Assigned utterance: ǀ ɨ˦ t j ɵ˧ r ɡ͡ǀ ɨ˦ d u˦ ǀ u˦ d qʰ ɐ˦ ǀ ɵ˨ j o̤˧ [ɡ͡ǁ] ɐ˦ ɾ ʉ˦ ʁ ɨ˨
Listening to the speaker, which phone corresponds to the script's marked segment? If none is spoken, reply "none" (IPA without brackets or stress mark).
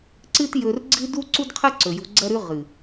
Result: ɡ͡ǀ